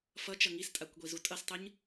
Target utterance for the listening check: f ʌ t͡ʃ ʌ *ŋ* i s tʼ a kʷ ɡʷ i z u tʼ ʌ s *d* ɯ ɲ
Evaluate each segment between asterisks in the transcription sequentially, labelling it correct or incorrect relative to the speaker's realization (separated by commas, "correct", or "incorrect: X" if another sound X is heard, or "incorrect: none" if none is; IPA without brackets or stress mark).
correct, incorrect: tˤ